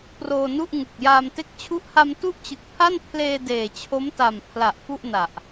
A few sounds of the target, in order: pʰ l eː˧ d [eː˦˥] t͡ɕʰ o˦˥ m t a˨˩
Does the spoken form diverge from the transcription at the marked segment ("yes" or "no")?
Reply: yes